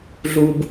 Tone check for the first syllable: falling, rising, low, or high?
high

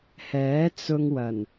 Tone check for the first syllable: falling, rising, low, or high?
rising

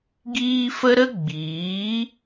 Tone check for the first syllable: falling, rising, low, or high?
high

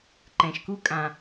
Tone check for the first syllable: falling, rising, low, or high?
low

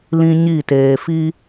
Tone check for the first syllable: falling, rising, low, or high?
high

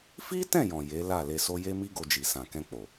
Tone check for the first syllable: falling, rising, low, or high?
high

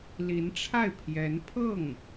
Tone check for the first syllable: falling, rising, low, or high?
rising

